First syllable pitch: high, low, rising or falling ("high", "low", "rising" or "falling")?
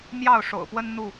falling